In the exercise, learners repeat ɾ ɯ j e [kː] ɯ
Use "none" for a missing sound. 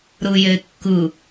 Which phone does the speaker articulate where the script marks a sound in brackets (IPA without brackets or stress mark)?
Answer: kː